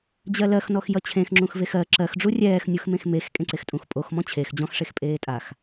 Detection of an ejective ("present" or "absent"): present